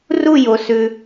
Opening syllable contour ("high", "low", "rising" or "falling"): falling